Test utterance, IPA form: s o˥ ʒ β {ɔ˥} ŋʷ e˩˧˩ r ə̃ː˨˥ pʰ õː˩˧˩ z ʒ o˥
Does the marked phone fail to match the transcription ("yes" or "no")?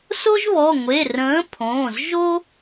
yes